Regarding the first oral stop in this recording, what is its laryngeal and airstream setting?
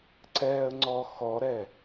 click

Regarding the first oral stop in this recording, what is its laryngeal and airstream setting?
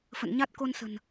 plain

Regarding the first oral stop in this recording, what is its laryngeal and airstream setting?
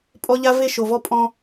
ejective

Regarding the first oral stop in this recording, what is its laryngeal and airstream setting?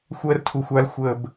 aspirated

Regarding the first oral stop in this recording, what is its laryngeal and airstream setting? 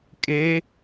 ejective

